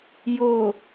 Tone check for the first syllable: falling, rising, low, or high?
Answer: low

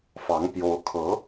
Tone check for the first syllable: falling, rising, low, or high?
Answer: rising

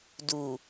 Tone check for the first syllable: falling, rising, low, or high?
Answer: low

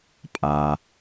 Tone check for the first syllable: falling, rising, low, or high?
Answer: low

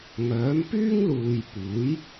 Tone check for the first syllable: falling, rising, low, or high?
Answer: rising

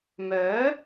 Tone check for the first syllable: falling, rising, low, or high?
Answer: rising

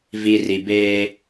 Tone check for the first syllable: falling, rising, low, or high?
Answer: low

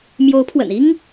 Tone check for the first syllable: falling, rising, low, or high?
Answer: rising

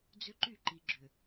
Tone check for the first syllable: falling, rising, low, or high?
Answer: high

